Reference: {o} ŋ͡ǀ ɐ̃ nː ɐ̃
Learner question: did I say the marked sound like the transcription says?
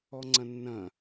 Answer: no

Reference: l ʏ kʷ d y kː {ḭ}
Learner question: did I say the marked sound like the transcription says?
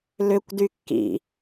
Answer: yes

